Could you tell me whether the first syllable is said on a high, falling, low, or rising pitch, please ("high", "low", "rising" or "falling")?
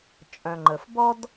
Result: low